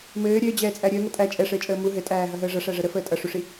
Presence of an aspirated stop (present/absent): absent